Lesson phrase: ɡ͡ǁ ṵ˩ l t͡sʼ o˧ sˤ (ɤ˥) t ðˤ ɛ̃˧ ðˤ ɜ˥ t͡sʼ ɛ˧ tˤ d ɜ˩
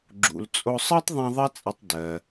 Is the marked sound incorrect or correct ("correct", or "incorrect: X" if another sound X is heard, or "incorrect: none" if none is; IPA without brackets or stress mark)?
correct